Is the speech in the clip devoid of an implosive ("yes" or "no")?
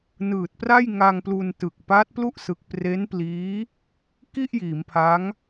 yes